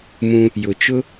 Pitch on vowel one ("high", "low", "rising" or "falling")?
high